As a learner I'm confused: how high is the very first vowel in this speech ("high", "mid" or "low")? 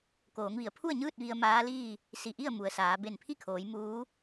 mid